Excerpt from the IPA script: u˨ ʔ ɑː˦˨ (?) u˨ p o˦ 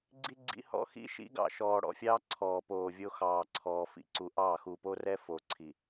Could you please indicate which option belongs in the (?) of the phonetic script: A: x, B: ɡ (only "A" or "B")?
A